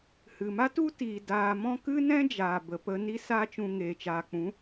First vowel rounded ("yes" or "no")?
no